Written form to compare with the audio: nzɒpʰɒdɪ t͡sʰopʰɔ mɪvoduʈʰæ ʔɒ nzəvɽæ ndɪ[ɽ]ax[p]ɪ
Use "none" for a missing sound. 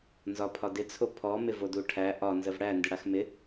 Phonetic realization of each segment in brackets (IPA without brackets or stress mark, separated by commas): ɽ, m